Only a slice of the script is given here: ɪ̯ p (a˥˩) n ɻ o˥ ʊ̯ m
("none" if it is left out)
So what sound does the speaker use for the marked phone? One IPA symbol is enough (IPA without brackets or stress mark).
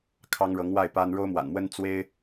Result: a˥